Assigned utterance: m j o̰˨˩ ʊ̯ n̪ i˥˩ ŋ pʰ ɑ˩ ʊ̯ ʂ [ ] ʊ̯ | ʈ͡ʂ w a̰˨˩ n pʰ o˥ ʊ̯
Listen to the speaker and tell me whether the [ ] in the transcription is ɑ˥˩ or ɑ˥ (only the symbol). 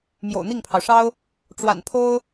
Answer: ɑ˥